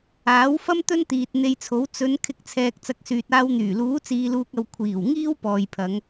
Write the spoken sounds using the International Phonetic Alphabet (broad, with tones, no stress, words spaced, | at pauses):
aː˨˥w fɐ˥m t̪ɵ˥nt̪iː˨t̚ n̪e˧jt͡sʰo˨˥w t͡sɵ˨˧n kʰɪ˧k̚t͡sʰɛː˨k̚ t͡sɐ˨˥k̚syː˨t̚aː˧wn̪yː˨˩ luː˨˥t͡siː˨luː˨k̚ɐ˨w kʷʰiː˨˩w ŋiː˥wpɔː˨jpʰɐ˨˧ŋ